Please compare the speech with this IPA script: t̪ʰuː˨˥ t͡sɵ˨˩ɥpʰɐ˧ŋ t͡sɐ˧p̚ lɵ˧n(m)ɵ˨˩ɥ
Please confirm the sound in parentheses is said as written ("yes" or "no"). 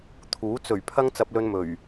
yes